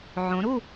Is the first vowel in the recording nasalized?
yes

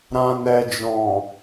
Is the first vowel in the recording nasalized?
yes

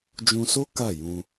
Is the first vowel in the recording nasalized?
yes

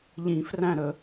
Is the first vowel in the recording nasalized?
yes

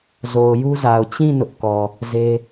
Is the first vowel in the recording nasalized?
no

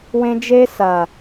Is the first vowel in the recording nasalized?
yes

